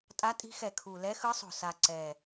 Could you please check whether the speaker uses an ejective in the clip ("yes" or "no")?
yes